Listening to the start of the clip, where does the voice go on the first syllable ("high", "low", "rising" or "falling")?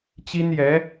high